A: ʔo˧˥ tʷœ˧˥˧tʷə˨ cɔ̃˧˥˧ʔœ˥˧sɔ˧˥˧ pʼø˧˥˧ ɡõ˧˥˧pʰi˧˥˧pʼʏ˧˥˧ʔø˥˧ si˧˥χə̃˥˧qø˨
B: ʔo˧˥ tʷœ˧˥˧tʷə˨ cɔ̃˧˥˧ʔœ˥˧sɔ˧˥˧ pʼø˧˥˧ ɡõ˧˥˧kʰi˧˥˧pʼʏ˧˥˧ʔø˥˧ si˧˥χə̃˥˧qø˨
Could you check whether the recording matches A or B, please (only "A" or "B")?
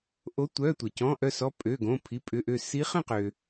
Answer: A